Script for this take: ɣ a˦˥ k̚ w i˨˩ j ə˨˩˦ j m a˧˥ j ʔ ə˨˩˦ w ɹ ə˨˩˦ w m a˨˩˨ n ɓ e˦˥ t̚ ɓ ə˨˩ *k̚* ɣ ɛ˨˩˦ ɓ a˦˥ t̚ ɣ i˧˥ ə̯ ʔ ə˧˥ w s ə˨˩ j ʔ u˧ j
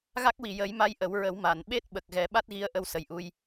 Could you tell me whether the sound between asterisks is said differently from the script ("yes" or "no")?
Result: no